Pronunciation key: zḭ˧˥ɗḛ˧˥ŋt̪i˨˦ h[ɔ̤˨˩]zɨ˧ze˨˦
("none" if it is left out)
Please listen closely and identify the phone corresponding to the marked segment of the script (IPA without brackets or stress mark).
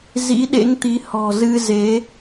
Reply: ɔ̤˨˩